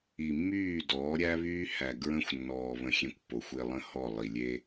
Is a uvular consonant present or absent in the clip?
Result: absent